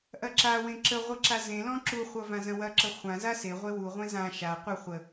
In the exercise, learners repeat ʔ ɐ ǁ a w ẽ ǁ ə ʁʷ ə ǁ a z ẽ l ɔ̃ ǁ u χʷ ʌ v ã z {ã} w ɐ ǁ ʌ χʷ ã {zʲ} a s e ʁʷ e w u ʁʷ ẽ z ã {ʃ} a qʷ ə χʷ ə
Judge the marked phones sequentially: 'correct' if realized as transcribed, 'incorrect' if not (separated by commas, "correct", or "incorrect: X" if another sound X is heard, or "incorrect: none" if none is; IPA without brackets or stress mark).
incorrect: ɐ̃, incorrect: z, correct